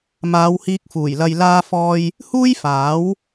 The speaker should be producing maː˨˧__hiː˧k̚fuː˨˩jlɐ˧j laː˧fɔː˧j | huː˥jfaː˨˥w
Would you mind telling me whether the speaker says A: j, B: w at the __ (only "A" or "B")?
B